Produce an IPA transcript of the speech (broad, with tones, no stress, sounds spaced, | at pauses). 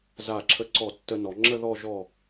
z a˧˩ ǁʰ ə˧ ǀ ɔ˧˩ tː ə˧ n ɔ˩˧ ŋ͡ǁ ə˥˧ ð ɔ˥˧ ʒ ɔ˥˧